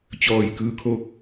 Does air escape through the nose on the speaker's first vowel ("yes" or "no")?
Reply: no